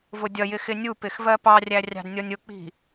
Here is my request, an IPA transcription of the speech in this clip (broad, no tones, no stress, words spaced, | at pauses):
vʊdʲʌjɪ xɪnʲupɪx vɜpɑrʲæ rʲɑ̤dnʲɔnʲʊk͡pi̤